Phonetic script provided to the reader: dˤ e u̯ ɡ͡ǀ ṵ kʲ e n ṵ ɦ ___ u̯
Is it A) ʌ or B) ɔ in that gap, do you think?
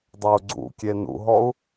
B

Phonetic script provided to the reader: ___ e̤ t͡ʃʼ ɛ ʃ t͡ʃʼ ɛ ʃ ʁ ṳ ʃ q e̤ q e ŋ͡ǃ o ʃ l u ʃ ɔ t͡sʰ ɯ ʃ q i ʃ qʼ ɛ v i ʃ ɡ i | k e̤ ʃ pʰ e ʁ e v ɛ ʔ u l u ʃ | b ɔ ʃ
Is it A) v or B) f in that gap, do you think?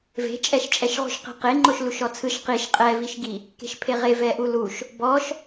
A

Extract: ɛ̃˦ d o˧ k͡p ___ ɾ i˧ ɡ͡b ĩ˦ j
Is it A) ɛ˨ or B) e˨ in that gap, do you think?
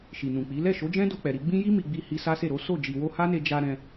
A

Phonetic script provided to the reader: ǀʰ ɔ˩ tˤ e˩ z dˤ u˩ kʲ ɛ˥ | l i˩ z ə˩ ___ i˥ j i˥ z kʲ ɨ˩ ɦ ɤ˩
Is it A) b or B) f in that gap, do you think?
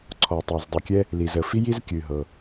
B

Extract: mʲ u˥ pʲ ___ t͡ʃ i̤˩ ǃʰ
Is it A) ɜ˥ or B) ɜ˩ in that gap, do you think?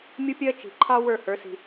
A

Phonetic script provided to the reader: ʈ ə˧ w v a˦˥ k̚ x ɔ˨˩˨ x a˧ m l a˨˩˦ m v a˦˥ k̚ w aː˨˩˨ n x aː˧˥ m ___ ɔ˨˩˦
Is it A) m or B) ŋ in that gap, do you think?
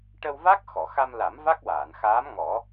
B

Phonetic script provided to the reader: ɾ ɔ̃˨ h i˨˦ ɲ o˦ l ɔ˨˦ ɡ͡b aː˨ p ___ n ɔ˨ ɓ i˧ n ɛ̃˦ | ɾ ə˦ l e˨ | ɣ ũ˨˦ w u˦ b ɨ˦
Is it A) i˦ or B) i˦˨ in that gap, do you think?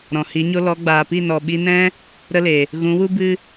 B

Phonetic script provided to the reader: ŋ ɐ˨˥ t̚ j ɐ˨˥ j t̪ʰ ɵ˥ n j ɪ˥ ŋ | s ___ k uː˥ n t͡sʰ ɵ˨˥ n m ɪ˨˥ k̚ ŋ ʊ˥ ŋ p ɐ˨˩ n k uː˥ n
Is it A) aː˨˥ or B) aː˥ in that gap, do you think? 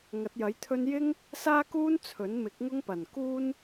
B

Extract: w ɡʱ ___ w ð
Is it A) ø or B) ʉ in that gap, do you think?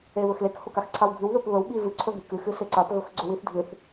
B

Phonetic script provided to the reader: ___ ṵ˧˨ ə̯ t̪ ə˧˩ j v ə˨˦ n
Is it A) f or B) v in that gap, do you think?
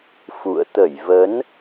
A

